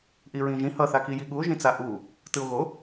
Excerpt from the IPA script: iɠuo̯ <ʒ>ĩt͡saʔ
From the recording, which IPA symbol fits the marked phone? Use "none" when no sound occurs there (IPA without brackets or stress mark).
ʒ